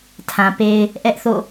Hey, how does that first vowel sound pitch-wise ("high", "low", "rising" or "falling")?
low